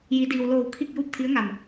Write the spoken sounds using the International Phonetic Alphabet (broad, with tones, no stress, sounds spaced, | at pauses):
j i˩˧ d iː˩ w l oː˧˩ w kʰ i˥˨ k̚ j uː˥˨ p̚ t̪ʰ i˧˥ ə̯ ŋ a˧˩ m